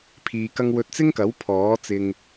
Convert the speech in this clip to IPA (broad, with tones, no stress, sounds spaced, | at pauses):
pʰ iː˧ k ɐ˥ ŋ w ɵ˧ t̚ t͡s ɪ˥ ŋ k ɐ˨˥ w pʰ ɔː˨˥ t͡s ɪ˧ ŋ